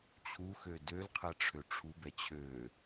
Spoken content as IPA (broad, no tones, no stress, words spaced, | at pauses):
t͡ɕʰu xødølqʰɛ ʈ͡ʂʰøʈ͡ʂʰubɛ t͡ɕʰø